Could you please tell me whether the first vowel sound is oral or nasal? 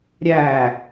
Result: oral